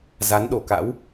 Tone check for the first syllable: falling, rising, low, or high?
rising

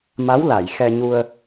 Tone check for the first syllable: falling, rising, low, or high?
rising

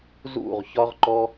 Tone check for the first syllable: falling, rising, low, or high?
falling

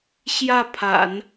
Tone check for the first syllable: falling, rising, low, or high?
falling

